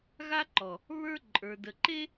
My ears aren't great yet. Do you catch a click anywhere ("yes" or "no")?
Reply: yes